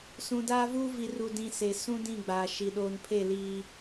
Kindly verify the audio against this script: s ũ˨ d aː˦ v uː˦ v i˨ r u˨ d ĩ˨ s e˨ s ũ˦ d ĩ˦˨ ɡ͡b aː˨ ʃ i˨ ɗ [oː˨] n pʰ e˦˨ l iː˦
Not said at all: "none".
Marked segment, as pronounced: oː˨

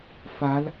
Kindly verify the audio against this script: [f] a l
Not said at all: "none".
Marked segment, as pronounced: f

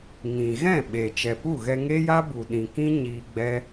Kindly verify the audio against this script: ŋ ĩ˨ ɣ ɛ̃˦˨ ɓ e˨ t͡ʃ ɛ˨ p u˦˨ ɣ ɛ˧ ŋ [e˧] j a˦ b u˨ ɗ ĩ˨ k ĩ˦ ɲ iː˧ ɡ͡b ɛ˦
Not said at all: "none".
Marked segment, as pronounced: e˦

